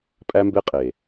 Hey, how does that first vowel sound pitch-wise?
high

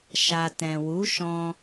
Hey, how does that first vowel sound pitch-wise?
low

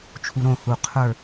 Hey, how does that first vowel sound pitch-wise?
low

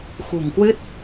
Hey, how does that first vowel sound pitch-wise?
low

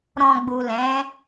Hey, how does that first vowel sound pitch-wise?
low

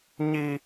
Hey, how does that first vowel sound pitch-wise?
high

